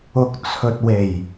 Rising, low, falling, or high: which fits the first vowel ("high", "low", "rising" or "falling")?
low